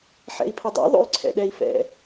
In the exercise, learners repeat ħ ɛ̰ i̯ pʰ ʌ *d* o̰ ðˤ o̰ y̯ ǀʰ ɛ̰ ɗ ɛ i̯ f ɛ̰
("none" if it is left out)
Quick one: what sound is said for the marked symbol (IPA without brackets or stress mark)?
dˤ